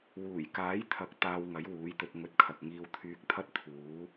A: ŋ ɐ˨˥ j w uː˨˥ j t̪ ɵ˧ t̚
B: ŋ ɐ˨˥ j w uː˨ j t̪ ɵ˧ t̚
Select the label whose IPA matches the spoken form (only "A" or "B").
A